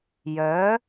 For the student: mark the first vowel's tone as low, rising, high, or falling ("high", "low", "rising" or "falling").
rising